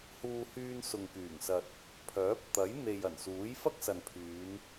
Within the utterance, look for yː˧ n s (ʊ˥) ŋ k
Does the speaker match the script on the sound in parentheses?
no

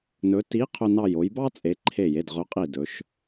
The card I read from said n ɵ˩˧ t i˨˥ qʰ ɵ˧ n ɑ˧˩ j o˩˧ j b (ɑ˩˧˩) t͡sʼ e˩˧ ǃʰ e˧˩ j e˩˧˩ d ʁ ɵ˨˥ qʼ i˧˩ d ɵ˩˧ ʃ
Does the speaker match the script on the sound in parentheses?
no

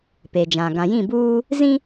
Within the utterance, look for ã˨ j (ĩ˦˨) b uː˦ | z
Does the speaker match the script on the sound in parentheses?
yes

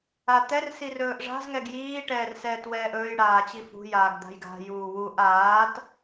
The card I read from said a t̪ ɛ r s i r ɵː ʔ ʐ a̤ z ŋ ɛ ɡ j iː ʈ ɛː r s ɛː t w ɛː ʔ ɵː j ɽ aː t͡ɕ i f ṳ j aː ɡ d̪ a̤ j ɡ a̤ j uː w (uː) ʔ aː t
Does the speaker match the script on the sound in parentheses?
no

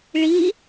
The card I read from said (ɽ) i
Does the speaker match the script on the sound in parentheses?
no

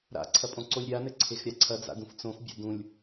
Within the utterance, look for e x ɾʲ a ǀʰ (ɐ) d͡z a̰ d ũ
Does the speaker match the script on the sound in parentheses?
yes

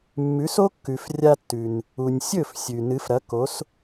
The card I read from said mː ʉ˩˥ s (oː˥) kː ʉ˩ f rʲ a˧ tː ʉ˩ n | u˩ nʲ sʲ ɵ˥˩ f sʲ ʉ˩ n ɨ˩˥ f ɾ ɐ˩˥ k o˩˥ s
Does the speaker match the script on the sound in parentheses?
no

